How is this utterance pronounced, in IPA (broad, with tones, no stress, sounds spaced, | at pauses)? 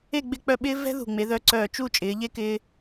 e˥˧ ɡ͡b ɪ˥˧ k͡p œ˥˧ ɓ ɪː˥ v ɛ̤˥ ð ṳ˧˩ ŋ͡m e˩˧ ð œ˧ ǀ œː˧˩ t͡ʃ u˥˧ t͡ʃʼ ɪː˩˧ ʎ e˥˧ k ɪː˧